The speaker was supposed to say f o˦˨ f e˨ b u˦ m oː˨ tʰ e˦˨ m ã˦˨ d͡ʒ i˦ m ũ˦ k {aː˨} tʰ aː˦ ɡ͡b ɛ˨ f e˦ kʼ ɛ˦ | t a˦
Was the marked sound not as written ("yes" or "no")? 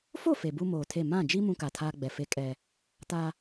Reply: yes